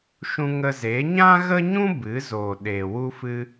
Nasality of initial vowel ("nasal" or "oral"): nasal